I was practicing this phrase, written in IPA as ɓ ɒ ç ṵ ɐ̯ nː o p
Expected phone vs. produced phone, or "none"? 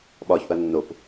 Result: none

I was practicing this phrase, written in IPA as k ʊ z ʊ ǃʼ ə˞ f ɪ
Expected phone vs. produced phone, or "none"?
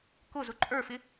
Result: none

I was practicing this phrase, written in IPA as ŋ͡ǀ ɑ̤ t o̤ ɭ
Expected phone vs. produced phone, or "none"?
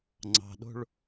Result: t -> ɗ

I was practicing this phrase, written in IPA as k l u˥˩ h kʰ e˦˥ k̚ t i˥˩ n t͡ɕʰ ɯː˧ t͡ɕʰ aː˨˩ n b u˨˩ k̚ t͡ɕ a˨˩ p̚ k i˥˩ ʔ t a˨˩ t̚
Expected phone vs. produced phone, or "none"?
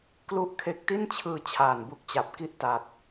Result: h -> ʔ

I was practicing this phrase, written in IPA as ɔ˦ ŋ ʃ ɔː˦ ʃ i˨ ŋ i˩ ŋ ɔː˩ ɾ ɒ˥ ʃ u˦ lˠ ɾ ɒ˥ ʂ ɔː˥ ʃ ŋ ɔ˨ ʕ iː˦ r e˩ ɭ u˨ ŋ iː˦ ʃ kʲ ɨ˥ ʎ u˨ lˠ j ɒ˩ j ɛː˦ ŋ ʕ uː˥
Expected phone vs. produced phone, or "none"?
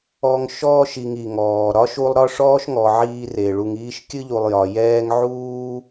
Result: none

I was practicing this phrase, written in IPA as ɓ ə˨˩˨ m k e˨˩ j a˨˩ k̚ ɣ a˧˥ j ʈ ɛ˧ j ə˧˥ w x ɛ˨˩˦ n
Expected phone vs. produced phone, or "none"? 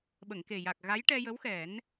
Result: m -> ŋ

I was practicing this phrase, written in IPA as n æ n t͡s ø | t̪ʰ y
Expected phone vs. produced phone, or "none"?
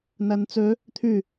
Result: none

